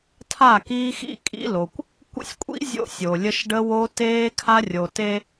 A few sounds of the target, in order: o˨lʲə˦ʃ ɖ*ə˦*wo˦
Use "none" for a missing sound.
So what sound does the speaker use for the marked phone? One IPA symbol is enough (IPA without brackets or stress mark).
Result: ə˦